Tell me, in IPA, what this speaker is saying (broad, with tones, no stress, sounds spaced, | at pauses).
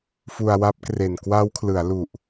f u˧ a̯ w a˦˥ p̚ k r e˨˩ n k w a˦˥ w kʰ l ɯ˩˦ a̯ l u˨˩ ʔ